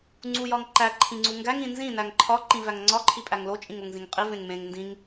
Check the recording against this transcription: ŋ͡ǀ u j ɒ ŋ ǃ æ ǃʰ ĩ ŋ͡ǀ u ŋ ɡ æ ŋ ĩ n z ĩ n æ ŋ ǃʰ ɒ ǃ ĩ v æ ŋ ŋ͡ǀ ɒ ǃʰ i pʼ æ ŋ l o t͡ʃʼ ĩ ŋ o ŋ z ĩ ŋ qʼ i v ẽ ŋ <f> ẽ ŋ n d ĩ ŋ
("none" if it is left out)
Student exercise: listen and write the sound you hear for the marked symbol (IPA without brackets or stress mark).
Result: m